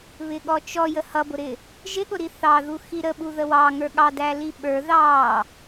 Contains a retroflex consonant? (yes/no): no